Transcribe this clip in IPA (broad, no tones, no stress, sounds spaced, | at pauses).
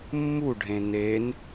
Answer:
mː u ɖʱ ẽ n e n